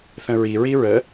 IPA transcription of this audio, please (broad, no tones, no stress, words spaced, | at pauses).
θə̃ɹi ɹiɹə